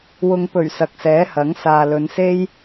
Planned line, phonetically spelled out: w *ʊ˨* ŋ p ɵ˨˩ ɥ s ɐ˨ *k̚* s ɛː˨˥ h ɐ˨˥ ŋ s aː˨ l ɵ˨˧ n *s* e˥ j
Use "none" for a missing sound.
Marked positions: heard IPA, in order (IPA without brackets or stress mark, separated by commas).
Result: ʊ˨, k̚, s